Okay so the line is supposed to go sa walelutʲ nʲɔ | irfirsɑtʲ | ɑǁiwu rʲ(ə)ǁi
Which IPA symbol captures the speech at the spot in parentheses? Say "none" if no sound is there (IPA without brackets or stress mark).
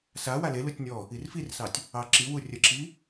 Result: ə